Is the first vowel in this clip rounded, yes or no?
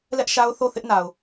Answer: no